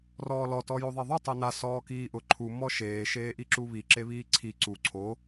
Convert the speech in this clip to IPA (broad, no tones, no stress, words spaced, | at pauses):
rɔːlɔ tɔjoðˤeðˤu tˤena sɔːkiːʔʊ ǃʰu mɔʃeː ʃeːʔiǁuβi ǁeβiːǀʰi ǀu ǀʰo